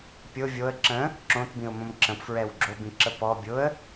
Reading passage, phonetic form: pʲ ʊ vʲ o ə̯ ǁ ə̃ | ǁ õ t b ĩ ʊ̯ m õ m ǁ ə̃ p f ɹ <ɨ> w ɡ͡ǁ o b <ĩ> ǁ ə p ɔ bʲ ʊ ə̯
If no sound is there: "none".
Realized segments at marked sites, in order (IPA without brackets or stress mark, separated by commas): ɛ, ĩ